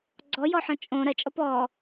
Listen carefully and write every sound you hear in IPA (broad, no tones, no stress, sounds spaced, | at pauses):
ɡ͡ǀ ɔ j ɔ ħ ɔ̃ t͡ʃʼ õ ɾ ɐ t͡ʃʼ ɔ p ɔ